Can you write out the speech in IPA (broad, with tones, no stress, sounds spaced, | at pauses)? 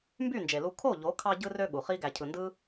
m b y˦˨ n d͡ʒ e˨ l u˧ kʰ o˦˨ ʎ o˨˦ kʰ ɑ˧ ɟ ɯ˧ r ø˧ ɠ u˨ χ i˦ ɡ æ˨ cʰ ɯ˨ n d ɯ˦